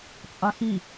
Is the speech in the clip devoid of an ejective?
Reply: no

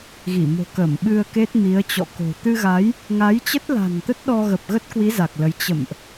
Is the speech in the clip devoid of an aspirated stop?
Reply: yes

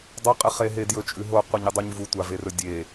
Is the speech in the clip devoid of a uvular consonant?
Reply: no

